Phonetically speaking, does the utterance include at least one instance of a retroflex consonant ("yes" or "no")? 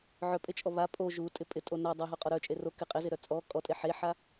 no